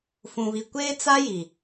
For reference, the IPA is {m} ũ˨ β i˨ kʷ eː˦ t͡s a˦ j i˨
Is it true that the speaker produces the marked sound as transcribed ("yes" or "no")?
no